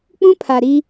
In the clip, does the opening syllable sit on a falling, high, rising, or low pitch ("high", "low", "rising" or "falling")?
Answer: high